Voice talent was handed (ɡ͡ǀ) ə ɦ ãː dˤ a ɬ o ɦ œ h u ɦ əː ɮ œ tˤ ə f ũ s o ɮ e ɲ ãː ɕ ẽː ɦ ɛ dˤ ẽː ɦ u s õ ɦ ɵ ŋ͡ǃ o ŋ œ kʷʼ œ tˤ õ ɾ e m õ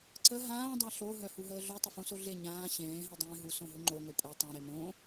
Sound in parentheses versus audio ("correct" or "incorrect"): incorrect